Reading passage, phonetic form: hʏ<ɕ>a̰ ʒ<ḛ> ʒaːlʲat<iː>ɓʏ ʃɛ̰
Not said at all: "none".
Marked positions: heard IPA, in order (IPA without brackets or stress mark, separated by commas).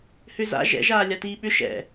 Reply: z, ɛ̰, iː